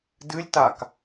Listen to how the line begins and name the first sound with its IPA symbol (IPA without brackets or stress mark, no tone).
d